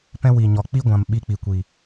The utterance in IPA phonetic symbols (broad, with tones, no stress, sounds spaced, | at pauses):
p ɛ̃˧ w i˨ ɲ ɔ˨ k͡p i˦ ɡʷ ã˨ m ɓ i˧ k͡p i˨ kʷ i˨